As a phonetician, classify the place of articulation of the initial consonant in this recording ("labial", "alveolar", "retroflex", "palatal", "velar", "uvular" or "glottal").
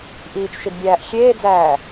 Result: glottal